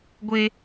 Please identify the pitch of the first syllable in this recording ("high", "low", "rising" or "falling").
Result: high